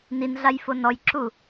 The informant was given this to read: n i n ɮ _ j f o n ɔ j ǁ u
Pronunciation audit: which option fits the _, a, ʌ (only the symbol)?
a